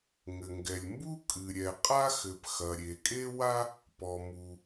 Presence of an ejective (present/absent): present